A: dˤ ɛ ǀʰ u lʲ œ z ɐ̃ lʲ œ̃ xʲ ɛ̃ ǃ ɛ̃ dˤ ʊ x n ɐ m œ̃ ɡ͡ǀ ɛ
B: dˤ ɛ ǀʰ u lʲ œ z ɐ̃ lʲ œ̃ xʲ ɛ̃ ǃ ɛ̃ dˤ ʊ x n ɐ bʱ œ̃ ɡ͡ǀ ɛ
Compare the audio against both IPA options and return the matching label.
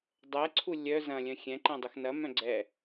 A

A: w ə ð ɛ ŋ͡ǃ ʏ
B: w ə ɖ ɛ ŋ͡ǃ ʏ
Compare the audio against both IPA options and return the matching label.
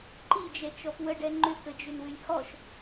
B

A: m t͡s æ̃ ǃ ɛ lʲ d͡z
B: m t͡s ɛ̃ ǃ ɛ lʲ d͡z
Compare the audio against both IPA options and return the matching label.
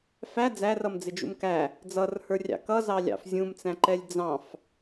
A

